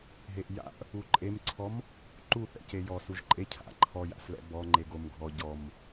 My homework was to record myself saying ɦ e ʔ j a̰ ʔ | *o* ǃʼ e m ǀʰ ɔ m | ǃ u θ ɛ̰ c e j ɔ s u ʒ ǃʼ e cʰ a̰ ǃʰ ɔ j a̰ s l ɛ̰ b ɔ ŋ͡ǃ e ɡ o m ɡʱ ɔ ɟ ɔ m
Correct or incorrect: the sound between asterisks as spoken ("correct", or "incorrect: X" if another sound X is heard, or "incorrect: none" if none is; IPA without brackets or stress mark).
incorrect: u